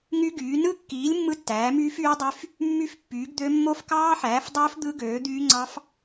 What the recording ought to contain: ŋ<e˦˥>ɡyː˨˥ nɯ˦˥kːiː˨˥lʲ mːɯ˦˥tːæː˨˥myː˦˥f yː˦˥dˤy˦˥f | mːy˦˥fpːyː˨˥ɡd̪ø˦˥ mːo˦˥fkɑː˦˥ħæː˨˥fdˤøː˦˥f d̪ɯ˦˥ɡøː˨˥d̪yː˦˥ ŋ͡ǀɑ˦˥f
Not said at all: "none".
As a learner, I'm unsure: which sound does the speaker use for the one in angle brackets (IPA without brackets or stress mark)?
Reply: y˦˥